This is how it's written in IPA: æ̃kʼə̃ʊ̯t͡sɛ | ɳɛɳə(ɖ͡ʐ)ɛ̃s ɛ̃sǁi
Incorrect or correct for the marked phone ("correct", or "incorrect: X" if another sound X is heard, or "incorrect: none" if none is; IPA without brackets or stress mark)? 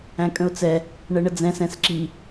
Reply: incorrect: d͡z